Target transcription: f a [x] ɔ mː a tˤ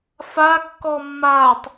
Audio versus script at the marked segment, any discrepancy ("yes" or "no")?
yes